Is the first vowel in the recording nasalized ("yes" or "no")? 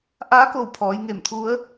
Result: no